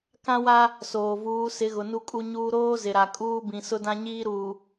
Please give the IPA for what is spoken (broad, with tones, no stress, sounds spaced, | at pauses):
k ã˦ w a˦ | s oː˨ v uː˨˦ s ɪ˨˦ ɣ ʊ˨ n u˦ kʼ u˦ ɲ uː˦ ɾ oː˦ z ɪ˨ ɾ a˨ kʼ uː˦ b ĩ˨ s ʊ˦ d ã˦ ɲ iː˦ ɾ uː˨